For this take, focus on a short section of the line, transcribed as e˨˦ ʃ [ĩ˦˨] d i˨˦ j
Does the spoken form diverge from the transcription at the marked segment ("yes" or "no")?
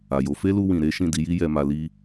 no